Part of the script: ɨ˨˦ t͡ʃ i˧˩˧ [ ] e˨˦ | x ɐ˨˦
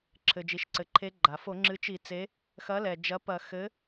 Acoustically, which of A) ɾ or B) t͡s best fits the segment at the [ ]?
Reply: B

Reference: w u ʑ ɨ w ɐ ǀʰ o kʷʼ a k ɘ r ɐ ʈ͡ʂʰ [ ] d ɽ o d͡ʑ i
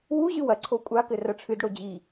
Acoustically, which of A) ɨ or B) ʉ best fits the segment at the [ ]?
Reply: A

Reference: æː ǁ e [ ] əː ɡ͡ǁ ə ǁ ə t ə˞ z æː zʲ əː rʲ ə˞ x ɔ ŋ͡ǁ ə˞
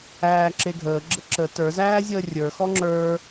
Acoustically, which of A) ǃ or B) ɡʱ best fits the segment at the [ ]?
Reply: B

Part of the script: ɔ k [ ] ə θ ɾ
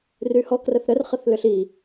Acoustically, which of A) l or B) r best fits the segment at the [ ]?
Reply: B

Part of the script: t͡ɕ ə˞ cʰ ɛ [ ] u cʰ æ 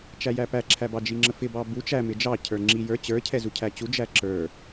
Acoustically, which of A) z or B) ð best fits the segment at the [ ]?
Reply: A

